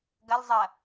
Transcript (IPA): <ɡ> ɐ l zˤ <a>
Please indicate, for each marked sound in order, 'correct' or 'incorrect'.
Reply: correct, incorrect: ɐ

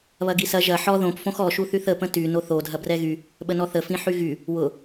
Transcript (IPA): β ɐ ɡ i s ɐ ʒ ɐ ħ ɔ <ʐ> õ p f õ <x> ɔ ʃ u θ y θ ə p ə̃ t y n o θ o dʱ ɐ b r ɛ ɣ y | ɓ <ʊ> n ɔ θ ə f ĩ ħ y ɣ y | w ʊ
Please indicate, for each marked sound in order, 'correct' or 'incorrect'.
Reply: incorrect: ð, correct, incorrect: ə

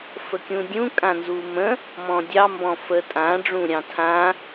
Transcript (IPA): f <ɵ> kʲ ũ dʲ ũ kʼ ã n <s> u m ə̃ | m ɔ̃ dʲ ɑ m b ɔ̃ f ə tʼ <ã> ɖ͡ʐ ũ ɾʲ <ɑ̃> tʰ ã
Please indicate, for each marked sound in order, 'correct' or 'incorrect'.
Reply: incorrect: ə, incorrect: z, correct, correct

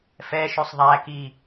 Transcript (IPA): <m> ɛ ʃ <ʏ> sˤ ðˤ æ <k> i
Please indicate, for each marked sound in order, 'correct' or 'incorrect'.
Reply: incorrect: f, correct, correct

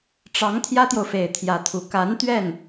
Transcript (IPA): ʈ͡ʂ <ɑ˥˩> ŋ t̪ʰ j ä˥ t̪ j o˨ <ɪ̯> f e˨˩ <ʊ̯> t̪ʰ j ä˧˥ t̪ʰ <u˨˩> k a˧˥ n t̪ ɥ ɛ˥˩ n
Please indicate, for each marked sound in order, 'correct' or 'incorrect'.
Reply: incorrect: ɑ˧˥, incorrect: ʊ̯, incorrect: ɪ̯, correct

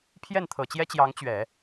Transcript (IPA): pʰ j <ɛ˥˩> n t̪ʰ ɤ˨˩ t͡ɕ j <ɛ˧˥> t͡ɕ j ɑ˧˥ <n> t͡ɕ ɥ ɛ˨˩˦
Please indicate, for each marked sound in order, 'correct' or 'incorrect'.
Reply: correct, incorrect: ɛ˥, incorrect: ŋ

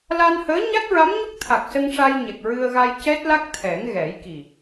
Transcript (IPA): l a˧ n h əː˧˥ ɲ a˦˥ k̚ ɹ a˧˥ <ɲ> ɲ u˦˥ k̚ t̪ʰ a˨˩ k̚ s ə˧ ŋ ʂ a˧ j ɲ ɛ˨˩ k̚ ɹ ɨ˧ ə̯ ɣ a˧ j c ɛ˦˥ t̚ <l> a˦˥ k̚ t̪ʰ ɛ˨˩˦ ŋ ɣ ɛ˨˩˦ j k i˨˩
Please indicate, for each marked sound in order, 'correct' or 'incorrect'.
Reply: incorrect: m, correct

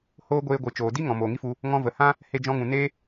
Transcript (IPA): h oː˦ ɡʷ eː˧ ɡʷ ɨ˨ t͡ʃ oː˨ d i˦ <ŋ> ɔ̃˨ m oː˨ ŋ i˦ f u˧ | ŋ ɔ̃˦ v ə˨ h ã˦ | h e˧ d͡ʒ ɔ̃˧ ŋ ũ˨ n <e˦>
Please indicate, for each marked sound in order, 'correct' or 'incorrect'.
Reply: correct, correct

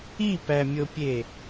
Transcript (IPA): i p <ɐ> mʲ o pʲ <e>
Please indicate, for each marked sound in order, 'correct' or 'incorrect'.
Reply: incorrect: æ, correct

